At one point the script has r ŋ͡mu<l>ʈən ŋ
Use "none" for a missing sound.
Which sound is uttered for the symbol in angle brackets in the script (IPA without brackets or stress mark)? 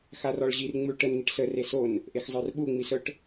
ɭ